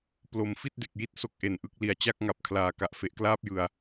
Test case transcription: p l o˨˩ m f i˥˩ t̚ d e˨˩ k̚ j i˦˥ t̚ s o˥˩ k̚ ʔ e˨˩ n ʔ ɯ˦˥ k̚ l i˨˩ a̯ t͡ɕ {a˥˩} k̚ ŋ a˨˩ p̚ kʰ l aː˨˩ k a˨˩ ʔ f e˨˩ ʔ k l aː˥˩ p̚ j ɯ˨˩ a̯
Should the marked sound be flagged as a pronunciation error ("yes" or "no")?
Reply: no